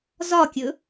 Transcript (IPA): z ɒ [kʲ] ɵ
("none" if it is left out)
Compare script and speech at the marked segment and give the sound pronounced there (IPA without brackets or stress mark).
kʲ